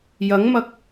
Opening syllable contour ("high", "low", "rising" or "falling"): rising